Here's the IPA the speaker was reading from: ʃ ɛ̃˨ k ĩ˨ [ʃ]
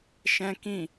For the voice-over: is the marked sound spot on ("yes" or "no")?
no